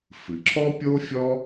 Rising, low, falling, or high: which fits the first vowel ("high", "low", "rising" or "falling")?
low